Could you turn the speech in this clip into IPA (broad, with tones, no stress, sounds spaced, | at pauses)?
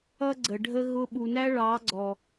ʌ˦ ɡ͡ǀ ə˨ ɖʱ ə˦ ɣ ʊ˧ ɓ u˨ n æ˦ ɭ ɑ˨˦ ɡ͡ǀ ɔ˨